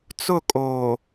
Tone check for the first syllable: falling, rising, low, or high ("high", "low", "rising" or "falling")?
falling